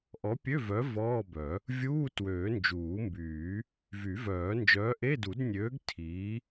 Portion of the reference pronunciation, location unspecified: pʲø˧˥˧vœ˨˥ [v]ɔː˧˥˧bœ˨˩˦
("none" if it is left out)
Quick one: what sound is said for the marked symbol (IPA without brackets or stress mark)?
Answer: v